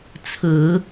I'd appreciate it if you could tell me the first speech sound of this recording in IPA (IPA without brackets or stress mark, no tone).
t͡sʰ